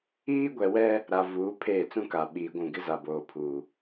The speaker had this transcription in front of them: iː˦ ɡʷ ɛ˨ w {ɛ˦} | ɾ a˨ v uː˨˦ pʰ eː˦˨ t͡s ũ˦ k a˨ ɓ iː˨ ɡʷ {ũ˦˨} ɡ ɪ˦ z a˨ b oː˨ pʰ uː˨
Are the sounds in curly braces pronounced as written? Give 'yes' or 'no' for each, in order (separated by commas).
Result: yes, yes